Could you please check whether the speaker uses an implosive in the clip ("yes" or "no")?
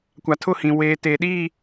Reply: yes